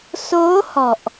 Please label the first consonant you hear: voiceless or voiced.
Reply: voiceless